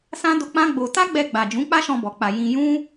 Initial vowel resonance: nasal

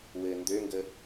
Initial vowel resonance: oral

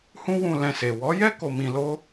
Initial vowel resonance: nasal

